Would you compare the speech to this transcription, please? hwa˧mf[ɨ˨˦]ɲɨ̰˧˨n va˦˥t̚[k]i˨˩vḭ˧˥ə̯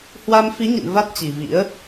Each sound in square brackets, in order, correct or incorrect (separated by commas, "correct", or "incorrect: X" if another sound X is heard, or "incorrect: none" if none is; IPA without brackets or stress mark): incorrect: i˨˦, incorrect: t͡ɕ